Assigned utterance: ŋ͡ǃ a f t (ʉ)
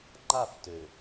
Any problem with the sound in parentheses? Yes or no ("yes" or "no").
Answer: yes